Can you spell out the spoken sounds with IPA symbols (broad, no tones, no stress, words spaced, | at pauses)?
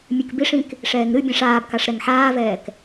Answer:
mʲɨkbiʂĩk | ʂɛːŋɾɨbʲɛ̃ʂ aːbkaʂ ɾɛŋħaːvɛːk